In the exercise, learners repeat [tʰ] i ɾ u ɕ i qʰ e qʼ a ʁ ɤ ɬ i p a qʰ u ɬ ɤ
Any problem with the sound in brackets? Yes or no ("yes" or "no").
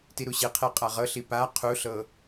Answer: yes